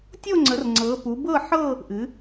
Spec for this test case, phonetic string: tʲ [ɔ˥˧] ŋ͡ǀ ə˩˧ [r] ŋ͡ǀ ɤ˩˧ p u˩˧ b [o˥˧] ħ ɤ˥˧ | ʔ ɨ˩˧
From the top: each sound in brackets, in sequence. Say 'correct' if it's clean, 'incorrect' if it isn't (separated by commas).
incorrect, correct, incorrect